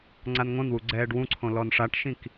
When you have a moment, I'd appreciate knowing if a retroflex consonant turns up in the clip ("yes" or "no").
yes